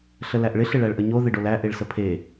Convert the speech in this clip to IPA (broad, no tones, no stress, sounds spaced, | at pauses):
ɬ ə l æ ʔ ɭ ɪ ɬ ɪ ɭ æ ɭ ʔ ə ɲ o ð ɪ ɖ o l æ ʔ e ɭ s ə pʰ e